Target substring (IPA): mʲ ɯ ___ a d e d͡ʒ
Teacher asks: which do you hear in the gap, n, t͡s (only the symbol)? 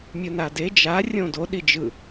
n